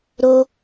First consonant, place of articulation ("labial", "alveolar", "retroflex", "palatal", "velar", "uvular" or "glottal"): alveolar